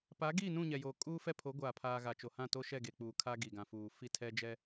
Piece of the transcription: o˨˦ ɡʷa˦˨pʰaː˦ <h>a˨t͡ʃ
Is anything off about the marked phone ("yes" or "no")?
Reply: yes